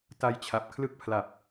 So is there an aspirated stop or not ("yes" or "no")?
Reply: yes